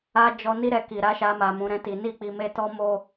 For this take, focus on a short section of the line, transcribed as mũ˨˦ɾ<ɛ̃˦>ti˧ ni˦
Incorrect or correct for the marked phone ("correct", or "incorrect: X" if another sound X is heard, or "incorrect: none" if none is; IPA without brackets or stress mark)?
correct